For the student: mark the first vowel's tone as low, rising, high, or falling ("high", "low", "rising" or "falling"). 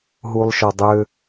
high